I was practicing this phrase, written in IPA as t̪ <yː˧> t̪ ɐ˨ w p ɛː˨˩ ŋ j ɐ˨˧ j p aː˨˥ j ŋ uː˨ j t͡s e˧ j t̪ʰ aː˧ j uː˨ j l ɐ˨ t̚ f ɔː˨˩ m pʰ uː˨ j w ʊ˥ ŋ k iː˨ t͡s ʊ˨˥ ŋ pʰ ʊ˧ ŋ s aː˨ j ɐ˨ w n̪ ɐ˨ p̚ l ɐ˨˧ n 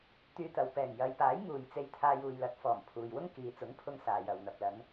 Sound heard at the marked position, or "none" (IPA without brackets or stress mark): yː˧